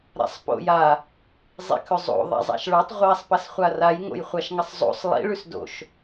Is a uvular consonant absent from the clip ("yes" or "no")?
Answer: no